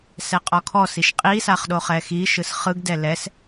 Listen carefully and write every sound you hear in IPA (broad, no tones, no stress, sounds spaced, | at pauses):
s ɛ qʼ ɔ kʰ ɔ s i ʃ qʼ i s a χ ɗ o χ ɛ x i ʃ ɯ s χ ɯ ɡ d ɛ l ɛ s